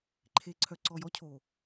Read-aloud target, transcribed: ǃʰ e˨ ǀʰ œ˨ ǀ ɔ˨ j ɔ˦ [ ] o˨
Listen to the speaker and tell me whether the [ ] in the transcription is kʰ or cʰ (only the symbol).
cʰ